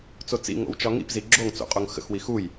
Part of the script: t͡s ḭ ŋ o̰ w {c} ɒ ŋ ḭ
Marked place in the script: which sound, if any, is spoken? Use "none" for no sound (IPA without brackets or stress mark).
t͡ʃ